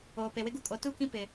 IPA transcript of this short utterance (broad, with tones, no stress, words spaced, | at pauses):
oː˨pe˨wɪ˦ɡu˦ kʼo˨tu˦˨kĩ˦ pɪ˦